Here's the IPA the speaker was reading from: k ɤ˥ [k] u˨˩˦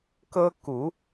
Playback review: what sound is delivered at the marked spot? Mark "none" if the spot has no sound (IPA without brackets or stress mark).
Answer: k